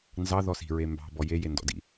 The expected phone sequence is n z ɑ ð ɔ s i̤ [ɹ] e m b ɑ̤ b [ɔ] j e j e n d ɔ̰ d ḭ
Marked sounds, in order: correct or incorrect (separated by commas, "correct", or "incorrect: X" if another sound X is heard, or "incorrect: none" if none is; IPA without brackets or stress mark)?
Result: correct, correct